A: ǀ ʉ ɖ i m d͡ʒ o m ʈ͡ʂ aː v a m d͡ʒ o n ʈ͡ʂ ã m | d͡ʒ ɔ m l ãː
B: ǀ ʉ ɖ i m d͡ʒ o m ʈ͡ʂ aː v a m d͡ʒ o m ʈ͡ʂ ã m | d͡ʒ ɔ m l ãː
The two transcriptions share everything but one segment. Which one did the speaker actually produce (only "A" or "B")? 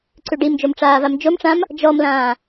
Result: B